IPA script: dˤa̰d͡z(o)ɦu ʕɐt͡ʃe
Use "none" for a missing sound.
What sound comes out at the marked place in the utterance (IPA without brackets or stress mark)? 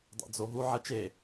o